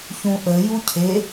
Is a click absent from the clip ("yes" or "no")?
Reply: yes